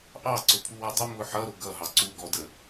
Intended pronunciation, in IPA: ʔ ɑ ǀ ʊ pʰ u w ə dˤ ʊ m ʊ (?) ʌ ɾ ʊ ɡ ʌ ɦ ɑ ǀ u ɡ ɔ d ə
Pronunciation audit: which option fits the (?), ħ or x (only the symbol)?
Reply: ħ